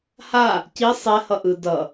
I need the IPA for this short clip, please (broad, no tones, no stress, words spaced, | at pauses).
ha | ci sˤɛ hʌʔɯ dʌ